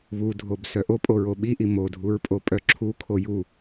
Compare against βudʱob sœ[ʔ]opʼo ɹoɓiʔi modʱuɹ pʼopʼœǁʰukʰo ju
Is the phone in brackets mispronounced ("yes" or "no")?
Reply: no